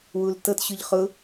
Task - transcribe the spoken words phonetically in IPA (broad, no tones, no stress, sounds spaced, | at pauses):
w u l t ɤ t ɕ ʊ ʎ χ ʊ